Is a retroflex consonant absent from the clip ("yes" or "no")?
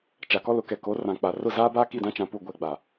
yes